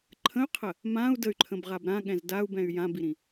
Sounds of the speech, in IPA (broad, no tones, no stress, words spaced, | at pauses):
ǃʰə̃y̯qʰə | mãu̯ dəy̯ǃʰə̃bʁab ɾãɠɛ̃z dau̯bɛ̃y̯ jãbiɾĩ